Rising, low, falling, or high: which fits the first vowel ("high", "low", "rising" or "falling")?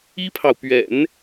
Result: high